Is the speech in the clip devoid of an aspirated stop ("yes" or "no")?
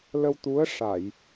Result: yes